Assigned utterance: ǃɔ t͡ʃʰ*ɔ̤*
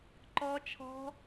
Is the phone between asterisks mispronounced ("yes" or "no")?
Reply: no